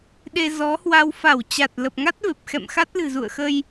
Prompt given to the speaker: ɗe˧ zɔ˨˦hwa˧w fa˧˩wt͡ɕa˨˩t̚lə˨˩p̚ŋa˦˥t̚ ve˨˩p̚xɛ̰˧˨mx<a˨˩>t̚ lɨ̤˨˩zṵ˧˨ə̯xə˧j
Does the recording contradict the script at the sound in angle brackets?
yes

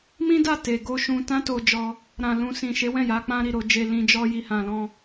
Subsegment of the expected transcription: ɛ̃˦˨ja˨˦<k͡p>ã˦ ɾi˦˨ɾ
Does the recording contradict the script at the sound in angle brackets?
no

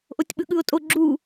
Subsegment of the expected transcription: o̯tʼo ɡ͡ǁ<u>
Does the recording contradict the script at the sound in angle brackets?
no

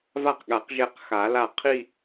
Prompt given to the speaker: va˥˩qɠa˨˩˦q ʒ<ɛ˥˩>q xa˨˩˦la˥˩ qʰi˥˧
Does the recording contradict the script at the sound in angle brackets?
no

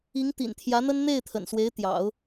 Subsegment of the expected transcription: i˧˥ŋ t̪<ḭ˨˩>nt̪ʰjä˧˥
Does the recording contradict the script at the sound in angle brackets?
no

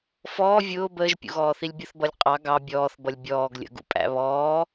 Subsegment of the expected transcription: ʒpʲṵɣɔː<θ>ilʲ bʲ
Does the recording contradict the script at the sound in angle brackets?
no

